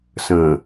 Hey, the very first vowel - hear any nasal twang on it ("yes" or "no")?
yes